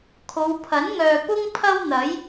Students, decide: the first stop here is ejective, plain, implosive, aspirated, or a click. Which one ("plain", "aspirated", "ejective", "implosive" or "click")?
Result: aspirated